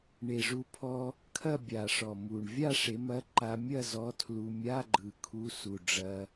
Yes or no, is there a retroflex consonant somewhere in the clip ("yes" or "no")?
yes